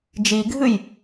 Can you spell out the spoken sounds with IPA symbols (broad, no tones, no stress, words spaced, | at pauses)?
d͡ʒiɡʱɨj